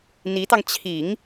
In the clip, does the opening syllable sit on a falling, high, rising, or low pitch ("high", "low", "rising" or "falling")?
rising